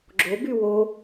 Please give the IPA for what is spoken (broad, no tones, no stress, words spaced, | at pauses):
ɡ͡ǁo bywo